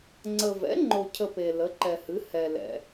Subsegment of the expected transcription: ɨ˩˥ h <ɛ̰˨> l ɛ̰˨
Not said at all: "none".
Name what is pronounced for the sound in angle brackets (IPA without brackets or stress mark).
ɛ˨